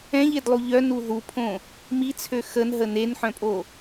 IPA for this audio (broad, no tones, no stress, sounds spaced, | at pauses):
ɛ̃ ʎ e d lˠ u ʎ œ n u ð u pʰ õ | m i t͡sʰ ø x ə n ɦ ə n e n ħ œ̃ pʼ o